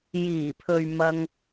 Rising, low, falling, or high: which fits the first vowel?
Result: low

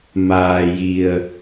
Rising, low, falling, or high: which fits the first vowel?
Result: low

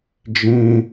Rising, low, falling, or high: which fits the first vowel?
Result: high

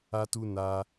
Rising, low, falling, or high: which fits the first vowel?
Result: high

